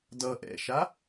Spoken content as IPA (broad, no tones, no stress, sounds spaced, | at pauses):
d ʌ ʔ ɛ̰ ʃ a